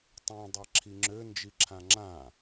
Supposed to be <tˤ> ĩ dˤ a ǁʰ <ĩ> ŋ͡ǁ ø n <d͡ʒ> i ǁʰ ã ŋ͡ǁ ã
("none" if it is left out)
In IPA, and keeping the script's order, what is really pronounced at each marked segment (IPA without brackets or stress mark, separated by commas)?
tˤ, i, d͡ʒ